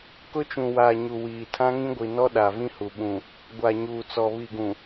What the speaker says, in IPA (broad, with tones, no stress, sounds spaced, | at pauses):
k ʊ˦ t͡ʃ ũ˨ w aː˨ ɲ u˨ w iː˨ tʰ ã˦ ŋ ĩ˦ ɡʷ i˨ n ɔ˦ ɗ a˨ v ĩ˦ h u˨ ɓ ũ˨ | ɡʷ a˨ ɲ uː˨ t͡s ɔ˨ β i˨ ɡ ũ˨